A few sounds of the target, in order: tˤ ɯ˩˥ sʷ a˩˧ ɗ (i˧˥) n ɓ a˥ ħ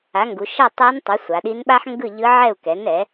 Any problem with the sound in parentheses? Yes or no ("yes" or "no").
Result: no